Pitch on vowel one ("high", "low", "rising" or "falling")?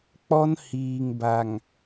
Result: high